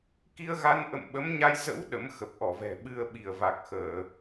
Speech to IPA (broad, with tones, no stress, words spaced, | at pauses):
ki˧ə̯ɣa˧nʔə̰˧˨m ɓə˨˦mɲa˧j zə̰˧˥w ɗə̰˧˥mxə˨˩p̚ʔɔ˧˩vɛ̤˨˩ ɓɨ˧ə̯ɓi˧˩ə̯ va˨˩k̚xəː˧˩˨